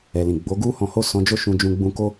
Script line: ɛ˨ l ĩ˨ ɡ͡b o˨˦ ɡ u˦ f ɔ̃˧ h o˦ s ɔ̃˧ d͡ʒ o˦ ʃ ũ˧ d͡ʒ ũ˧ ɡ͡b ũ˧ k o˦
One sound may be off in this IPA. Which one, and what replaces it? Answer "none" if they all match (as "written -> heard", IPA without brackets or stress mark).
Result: f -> h